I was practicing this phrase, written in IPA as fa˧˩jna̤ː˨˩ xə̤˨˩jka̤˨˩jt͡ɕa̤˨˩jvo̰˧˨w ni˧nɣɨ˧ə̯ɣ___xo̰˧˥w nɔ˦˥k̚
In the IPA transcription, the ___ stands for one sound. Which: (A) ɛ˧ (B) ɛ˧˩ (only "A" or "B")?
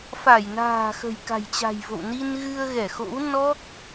B